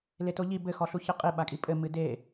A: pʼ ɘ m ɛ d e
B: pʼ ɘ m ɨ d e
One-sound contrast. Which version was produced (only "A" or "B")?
B